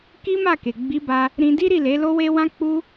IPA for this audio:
k i˦ m a˦˨ k e˨ ɡ͡b i˨˦ b a˧ | ɾ ĩ˧ d i˦ ɾ i˦˨ l e˨˦ l o˦ w e˦ w ã˦ k͡p u˦

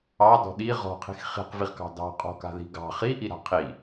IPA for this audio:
ɑ d ɔ̤ ɗ i ʁ ɔ̤ qʰ i̤ x χ i̤ q v i ʁ k ɑ̤ d ɑ̤ qʼ ɔ̤ k a̤ ð i̤ ɡ ɑ̤ χ i ʔ i ɾ a̤ qʰ i

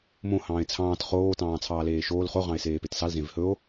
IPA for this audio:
m õ h ɑ̃ː e̯ t͡sʰ ɑ̃ː t χ oː t ɑ̃ː t͡sʰ ɑː l eː ʃ oː l χ o ʁ ɑ̃ e̯ s eː p e t s ɑ l z ẽ v h ɵ o̯

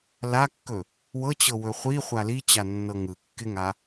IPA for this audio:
l a kː ɵ | w ɤ t͡ɕ ɤ w ɵ χʷ i χʷ a l i t͡ɕ a nː ɤ ŋ ɯ kː ɪ ŋ a

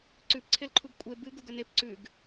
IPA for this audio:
ǀ ʉ p ǀʰ e l ǃʰ u ɡ kʷʼ e b ɨ ɡ u ɡ ɵ n e p ǀ ʉ ɡ

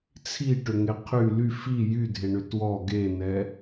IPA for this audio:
t͡sʰ i ʈ ʏ ŋ e qʰ y l y f i j y dʱ e ɳ ʏ t w ɔ ɡ e n ɛ

